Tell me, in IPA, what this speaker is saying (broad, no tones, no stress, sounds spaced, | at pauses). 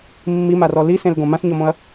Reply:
mː i m a r ɔ l i s ẽ l ɡ õ m ã s ɲ ɔ m õ ɐ̯